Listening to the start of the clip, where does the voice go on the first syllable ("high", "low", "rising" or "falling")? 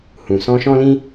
low